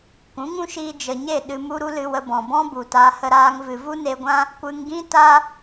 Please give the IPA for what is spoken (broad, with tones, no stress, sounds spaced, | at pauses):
kʷ ũ˨˦ ŋ ũ˦ ʃ iː˧ d͡ʒ ə˨ ɲ e˦˨ ɗ ɨ˧ m u˧ ɾ u˧ l ɨ˧ w ə˧ b ɔ̃˨ b ɔ̃˦ b u˨ t a˧ h ə˧ ɾ aː˧ ŋ v ɨ˨ v u˦ n e˧ ɡʷ ã˦ | kʷ ɨ˧ ŋ ɡ ĩ˦ t a˦